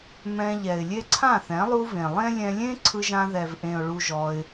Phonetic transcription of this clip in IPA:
mɛ̃˧ ʎɛ˨ɪ̯lʲe˦ ǀʰã˦˨θɛ̃˨˦ lˠu˧v ẽ˨lˠẽ˦ lʲɛ̃˧lʲẽ˦ ǀʰɯ˧ʒã˧ðɛ˨vʔẽ˨ʊ̯ ɭu˧ʒɔ˧ɪ̯

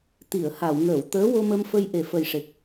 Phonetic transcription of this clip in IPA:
t̪i˨˩˨ə̯ha˨˩˨wŋəː˨˩˨w t̪əː˧˥wo˧mə˧mfə˧j ʔe˨˩fə˨˩jʂe˨˩k̚

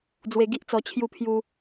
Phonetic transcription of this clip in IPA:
d͡zwe˧ɡi˦ʔt͡sɔ˧ t͡ɕʰju˧pʰju˧

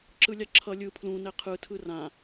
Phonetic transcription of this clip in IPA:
ǁɯlʲaǁʰʌ lʲɯ pʰlũnɛ qʰɯtʰɯ rã

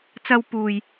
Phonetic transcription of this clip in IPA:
t͡sɐ˧wpuː˨j

